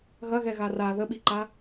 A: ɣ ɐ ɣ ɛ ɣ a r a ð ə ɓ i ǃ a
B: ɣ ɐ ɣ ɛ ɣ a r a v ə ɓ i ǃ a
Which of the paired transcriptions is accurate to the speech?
A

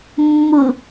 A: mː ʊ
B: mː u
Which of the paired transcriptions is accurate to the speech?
A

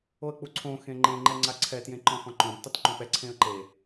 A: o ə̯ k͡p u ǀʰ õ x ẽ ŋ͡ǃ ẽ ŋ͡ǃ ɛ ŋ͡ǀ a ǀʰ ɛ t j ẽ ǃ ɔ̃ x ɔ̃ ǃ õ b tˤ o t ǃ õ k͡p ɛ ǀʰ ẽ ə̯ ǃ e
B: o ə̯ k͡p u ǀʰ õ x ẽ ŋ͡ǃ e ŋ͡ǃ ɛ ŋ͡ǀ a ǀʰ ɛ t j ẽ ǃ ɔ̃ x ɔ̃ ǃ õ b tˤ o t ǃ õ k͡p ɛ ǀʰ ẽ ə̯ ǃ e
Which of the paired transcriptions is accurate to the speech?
A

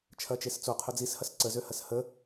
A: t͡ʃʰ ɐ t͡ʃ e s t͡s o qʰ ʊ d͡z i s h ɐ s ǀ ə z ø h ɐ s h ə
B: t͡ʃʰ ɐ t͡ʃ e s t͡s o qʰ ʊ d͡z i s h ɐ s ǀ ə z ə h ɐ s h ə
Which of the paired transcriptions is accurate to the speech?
A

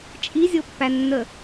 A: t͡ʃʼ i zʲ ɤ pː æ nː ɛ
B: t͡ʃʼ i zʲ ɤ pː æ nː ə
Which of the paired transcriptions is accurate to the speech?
B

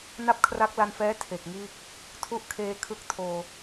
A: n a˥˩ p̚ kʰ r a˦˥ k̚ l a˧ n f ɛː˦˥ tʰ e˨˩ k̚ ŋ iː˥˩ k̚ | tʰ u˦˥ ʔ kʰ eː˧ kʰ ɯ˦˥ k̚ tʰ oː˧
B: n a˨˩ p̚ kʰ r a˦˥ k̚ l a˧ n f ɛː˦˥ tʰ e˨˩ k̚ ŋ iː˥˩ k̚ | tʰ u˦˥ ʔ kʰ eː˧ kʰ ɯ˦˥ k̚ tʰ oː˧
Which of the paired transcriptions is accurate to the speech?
A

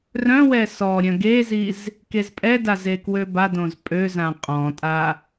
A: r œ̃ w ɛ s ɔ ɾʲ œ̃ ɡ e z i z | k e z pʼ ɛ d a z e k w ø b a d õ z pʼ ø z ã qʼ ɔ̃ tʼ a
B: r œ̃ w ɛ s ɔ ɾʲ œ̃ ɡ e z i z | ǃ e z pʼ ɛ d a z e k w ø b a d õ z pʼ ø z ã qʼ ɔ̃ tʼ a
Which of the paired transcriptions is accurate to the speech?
A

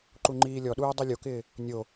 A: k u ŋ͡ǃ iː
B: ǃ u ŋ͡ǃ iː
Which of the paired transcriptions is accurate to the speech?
B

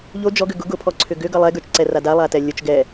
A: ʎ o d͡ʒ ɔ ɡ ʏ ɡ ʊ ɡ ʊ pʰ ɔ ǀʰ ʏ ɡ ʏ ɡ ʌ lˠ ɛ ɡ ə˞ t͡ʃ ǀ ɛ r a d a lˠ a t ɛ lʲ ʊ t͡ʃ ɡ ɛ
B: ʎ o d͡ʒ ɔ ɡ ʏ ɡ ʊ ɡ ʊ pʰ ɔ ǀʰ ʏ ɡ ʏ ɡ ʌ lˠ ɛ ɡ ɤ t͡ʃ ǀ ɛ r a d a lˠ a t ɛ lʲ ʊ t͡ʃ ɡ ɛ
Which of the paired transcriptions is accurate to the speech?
A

